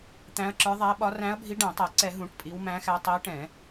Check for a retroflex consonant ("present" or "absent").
present